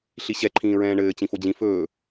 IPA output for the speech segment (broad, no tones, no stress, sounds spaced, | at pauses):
ɬ i ɕ ɛ ǃʰ ĩː ɹ ɛ̃ː ɳ ɘː t͡ɕ ĩ f o d͡ʑ ĩ f ɵː